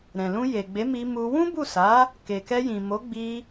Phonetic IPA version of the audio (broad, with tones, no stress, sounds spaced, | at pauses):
ɾ ɛ̃˨ l ũ˧ j e˨ ɡ͡b e˨˦ m i˧ m u˧ w ũ˦ b u˦˨ s a˨˦ | k e˨ k ɛ˧ j ĩ˨ m o˨˦ ɡ͡b i˧